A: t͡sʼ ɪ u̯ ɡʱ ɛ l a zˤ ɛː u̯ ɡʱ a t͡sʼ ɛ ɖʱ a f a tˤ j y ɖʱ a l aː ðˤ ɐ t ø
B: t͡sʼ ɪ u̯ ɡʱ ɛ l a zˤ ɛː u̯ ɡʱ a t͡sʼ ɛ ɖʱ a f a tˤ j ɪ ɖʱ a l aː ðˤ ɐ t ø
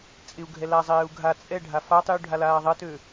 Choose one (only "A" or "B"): A